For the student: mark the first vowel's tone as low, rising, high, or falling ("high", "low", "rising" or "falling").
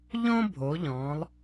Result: high